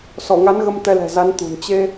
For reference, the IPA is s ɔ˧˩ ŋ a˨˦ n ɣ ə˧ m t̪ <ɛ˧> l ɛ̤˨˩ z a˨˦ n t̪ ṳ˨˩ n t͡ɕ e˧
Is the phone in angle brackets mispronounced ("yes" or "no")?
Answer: no